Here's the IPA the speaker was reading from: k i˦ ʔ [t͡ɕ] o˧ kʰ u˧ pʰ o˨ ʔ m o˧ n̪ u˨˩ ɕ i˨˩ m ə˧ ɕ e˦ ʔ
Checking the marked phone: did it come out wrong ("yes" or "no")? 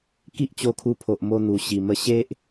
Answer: no